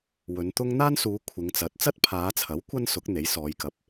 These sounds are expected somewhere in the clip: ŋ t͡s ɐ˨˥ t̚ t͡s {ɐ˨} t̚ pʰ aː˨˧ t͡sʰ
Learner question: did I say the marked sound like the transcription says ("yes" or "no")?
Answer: no